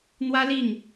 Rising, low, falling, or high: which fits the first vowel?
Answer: high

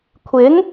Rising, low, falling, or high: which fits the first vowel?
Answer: rising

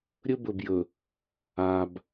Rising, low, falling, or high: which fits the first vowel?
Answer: high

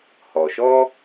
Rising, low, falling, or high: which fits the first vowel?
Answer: low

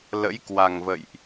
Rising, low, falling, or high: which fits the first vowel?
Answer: rising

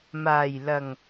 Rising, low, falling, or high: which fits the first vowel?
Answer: low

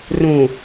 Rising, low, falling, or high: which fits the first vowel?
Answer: low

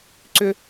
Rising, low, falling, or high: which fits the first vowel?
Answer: high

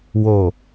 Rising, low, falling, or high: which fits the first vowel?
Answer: low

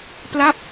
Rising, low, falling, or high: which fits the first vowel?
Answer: falling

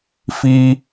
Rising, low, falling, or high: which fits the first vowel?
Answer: high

